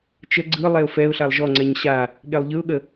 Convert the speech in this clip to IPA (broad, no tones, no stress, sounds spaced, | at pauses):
t͡ʃ ə ɡ͡ǀ ɯ lˠ ɛ ʊ̯ f ɛ ʊ̯ ɬ a lˠ ʒ ɔ ŋ͡ǀ ɛ ɲ ɕ a | ɠ e lˠ ʎ ɯ ʊ̯ ɠ ə